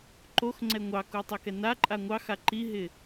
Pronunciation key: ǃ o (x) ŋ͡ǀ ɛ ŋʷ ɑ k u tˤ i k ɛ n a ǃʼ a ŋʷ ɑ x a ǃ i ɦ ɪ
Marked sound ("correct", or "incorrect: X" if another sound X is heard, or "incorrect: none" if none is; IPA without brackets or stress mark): correct